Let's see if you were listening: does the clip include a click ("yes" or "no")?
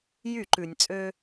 yes